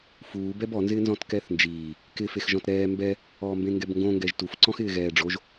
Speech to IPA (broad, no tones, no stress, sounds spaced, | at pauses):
f uː b ɛ b ɔ n z ɪː n z ɔ̃ t k ɛ θ n d͡ʒ iː | k ɪ f e x ʒ ɔ̃ t ɾ ɛː m b ɛ | ɔː m b ẽ ŋ ɡ ɛ b ŋ ɡ õ ŋ ɡ ɛ ʒ t u f ǀ ɔ̃ x ɪː ɣ ɛː ɖ͡ʐ o ʒ